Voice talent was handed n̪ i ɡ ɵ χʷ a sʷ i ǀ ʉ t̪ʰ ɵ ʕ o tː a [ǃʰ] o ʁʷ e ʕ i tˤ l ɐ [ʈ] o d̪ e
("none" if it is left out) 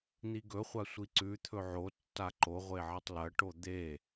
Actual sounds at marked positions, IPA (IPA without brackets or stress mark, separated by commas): ǃ, ʈ